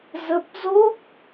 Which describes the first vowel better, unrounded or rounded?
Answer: unrounded